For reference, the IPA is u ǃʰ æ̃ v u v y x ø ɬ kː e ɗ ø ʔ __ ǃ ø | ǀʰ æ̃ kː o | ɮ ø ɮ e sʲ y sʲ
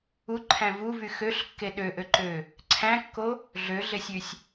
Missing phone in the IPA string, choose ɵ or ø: ø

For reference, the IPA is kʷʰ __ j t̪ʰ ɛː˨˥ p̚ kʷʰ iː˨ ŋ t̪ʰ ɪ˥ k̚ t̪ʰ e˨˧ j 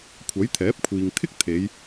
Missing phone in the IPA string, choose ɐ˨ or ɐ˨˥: ɐ˨˥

